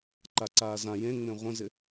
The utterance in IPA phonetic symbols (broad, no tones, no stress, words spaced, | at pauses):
ǃaǀaːzã jẽŋ͡mẽ ʁʷə̃zɪ